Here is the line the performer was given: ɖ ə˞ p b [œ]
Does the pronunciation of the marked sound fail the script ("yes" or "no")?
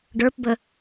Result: yes